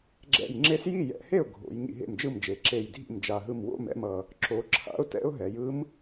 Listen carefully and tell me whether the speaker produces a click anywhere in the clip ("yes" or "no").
yes